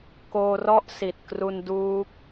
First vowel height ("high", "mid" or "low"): mid